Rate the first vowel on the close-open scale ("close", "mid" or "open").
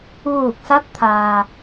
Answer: close